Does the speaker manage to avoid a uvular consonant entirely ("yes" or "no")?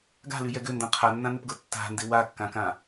no